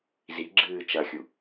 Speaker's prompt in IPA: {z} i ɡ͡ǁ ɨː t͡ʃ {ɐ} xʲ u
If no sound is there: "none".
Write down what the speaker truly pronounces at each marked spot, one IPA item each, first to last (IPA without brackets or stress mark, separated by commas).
z, ɐ